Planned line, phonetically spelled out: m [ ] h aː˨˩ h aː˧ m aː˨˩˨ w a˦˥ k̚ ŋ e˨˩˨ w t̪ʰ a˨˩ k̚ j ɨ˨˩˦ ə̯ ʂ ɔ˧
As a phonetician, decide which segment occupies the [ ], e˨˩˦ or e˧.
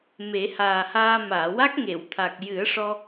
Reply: e˨˩˦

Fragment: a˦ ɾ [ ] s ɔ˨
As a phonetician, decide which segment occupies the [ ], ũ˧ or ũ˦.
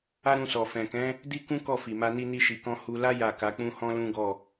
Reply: ũ˧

